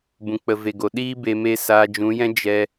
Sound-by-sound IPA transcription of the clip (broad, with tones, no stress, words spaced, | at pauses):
bũ˨k͡pə˨ve˨ɡo˨ ɗiː˦be˧ me˧ saː˧d͡ʒũ˨˦jɛ̃˦ d͡ʒɛ˧